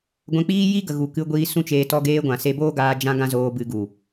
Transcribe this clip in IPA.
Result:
ɡʷɛ̃˧k͡piː˦ ji˦ɡə˨ ɣu˨ kɨ˧ ɡʷiː˧sũ˦t͡ʃeː˧ tɔ˧ɡeː˧ɡʷã˨ se˧boː˦ɡaː˧ d͡ʒã˧ ɡã˦zoː˧bɨ˧ ɡu˨

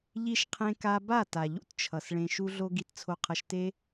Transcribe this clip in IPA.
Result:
ʎi˧ʃqʰẽ˧ ka˧ba˦˨ ta˨ʎṵ˦tt͡ʃʰʌ˨s ɭẽ˨ʃu˧ɮo˧ ɡi˧tt͡sʰo˧qʰʌ˧ʃte˦

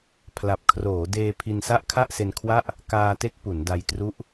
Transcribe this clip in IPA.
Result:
pʰla˨˩p̚kʰroː˩˦deː˧ pʰi˧nsa˥˩ʔkʰa˥˩ʔse˧n kʰwa˥˩ʔ | kaː˧te˦˥k̚ pu˩˦nda˧jtru˦˥ʔ

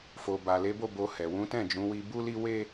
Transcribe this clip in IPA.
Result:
fo˨ ba˨le˨˦bo˦˨ bo˧hɛ˨ wũ˨˦tɛ̃˦˨d͡ʒũ˨˦wi˧ bu˦li˦we˦

